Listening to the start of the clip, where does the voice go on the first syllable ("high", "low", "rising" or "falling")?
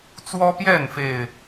high